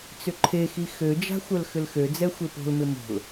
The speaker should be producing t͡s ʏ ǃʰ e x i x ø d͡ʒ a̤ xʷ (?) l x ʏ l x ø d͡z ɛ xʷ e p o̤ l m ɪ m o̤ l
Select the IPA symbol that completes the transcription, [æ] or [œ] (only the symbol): œ